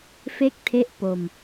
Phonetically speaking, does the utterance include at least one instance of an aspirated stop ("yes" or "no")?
yes